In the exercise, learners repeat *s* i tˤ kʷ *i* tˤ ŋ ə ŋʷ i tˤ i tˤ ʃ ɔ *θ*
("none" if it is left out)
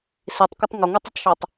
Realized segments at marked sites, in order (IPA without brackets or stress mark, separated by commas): s, ɪ, tˤ